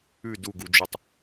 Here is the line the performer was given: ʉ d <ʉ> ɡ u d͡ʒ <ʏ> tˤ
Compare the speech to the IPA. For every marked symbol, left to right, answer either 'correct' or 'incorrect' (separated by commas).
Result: incorrect, incorrect